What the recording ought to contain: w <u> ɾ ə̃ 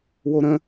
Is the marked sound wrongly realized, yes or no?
yes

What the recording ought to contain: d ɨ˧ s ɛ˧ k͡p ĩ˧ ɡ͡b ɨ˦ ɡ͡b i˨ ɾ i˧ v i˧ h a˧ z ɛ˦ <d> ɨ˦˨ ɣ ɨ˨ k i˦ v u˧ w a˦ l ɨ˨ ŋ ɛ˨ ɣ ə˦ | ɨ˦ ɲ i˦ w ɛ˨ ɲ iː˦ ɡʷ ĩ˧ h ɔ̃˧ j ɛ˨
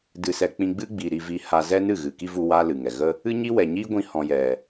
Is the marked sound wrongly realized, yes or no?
yes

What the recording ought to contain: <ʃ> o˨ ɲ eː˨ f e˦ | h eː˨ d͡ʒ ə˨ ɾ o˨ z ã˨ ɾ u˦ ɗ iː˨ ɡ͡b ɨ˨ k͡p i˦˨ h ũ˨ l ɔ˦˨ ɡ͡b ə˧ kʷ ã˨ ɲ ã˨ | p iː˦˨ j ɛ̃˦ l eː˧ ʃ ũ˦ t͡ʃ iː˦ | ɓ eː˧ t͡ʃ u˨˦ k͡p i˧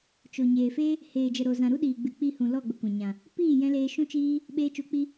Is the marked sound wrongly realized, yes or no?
yes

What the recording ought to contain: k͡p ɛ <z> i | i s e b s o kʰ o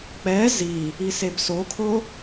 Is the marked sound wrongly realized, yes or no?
no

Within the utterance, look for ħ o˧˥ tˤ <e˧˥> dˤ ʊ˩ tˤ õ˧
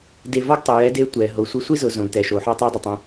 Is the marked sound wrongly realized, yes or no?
no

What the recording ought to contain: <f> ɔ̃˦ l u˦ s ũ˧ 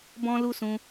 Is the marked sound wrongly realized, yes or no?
yes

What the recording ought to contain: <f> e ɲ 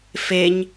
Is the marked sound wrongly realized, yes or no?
no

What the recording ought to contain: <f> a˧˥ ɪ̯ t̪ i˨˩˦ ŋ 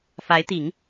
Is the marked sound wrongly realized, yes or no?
no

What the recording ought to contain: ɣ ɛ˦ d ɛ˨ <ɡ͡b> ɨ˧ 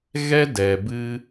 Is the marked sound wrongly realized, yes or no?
yes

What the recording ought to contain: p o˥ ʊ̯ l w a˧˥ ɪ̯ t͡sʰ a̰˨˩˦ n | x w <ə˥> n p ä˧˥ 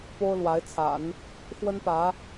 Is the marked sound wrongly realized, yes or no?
no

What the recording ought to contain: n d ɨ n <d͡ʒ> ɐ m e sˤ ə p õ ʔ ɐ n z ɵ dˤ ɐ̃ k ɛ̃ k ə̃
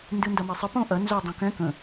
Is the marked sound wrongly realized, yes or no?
yes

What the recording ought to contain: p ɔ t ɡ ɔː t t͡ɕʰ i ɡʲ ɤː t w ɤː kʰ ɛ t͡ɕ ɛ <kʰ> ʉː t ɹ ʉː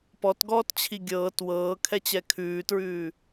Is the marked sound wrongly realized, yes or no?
no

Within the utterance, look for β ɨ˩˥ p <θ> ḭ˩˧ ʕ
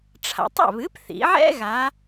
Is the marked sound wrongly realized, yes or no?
no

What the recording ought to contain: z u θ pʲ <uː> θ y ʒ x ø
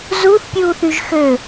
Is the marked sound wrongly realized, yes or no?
no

